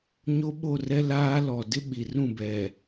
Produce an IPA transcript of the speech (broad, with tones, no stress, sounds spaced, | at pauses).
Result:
ɲ o˦ ɓ o˦˨ r ɛ˦ l aː˦ l ɔ˨ d ɪ˦ ɓ i˨ r ũ˦˨ b ɛ˨